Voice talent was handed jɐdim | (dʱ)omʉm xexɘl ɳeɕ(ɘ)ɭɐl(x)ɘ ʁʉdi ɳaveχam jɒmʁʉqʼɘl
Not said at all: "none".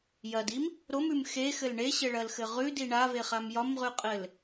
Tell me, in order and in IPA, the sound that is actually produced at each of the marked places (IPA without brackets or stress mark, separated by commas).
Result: ɾ, ɘ, x